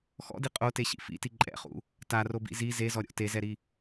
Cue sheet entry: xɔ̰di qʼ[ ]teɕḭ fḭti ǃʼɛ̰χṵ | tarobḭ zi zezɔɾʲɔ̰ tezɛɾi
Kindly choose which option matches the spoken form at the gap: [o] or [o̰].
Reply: o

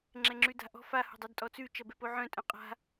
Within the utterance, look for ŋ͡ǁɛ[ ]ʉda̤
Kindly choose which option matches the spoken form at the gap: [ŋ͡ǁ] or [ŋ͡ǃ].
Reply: ŋ͡ǁ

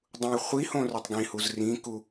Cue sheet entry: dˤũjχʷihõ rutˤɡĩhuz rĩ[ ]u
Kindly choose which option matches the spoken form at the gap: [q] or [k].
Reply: k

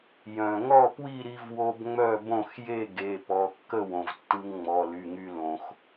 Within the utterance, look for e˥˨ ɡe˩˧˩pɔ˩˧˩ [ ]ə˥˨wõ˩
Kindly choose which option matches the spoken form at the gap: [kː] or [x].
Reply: kː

